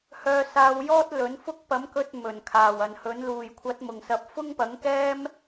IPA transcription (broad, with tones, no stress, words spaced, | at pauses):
hœː˧saː˧wjɔː˥t̚ lɵ˨˥nfʊ˥k̚ pɐ˨˥mkɵ˧t̚ mɵ˨˩nkʰaː˨˩wɐ˨nhɵ˨˥n luː˨˩jkʷʰɐ˨˥t̚ mʊ˨ŋsɐ˧p̚ fʊ˥ŋpɐ˨˥ŋkɛː˥m